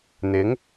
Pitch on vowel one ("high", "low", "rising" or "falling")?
rising